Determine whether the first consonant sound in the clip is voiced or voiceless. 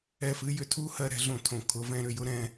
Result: voiceless